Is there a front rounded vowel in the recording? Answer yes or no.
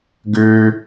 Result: yes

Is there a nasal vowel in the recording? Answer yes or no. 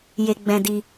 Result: yes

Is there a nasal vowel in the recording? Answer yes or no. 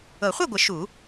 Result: no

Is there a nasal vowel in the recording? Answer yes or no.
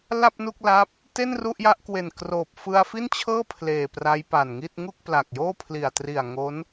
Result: no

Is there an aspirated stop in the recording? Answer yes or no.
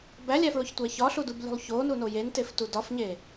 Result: no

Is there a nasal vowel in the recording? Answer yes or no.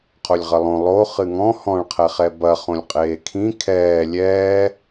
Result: yes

